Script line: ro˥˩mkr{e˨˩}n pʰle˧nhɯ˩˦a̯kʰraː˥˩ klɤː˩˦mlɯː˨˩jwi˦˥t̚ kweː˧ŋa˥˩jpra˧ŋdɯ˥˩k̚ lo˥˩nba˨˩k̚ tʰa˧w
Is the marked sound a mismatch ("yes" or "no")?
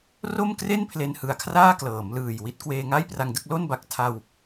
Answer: yes